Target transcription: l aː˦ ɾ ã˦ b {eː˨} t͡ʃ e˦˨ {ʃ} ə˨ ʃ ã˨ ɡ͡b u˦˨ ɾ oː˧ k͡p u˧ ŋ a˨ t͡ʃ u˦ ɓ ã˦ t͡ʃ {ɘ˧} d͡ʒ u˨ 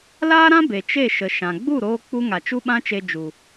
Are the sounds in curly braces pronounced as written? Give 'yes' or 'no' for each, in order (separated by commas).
no, yes, no